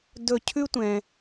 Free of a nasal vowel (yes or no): no